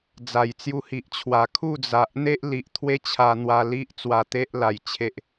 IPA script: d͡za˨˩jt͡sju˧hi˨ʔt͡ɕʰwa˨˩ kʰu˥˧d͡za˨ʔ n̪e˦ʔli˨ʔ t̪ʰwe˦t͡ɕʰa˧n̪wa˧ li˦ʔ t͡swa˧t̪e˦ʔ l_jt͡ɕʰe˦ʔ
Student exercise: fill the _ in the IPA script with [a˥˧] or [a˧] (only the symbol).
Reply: a˧